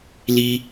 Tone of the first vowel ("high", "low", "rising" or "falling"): high